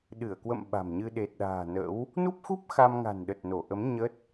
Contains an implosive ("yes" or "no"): yes